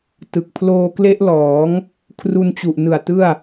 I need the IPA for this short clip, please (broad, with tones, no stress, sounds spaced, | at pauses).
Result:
t ɯ˨˩ k̚ pʰ l oː˧ k l e˦˥ ʔ l ɔː˩˦ ŋ | kʰ r u˧ n t͡ɕ u˨˩ ʔ n ɯ˨˩ a̯ t ɯ˥˩ a̯